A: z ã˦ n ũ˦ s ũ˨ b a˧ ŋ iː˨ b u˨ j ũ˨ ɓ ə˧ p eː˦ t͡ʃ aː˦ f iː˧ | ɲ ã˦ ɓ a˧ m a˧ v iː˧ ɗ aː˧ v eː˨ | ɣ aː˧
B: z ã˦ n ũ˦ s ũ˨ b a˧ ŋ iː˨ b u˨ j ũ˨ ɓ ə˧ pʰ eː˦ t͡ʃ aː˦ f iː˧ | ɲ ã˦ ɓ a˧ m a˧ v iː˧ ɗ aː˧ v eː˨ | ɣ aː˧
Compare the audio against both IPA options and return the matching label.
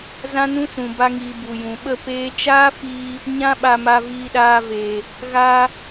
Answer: A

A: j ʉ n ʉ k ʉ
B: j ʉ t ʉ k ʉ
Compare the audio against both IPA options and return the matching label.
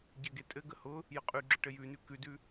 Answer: A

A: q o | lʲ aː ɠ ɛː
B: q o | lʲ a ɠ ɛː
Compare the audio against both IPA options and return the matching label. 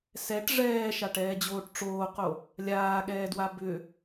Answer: A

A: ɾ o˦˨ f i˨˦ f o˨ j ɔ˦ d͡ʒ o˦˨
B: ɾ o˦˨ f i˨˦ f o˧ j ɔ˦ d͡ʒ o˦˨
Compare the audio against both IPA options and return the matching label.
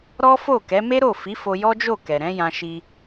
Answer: B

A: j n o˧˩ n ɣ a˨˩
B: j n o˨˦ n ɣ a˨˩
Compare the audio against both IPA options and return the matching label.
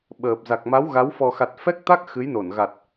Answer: A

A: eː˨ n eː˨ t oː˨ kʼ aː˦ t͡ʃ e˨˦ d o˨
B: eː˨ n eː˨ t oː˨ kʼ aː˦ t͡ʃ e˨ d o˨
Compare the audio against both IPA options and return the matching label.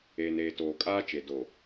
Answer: B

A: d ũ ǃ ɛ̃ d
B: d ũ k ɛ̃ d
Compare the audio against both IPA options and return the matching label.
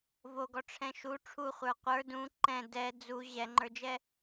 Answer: A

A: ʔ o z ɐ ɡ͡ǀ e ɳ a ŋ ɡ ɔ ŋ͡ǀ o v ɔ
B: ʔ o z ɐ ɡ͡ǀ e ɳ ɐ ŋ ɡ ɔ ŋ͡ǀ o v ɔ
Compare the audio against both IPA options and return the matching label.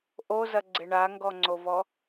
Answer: A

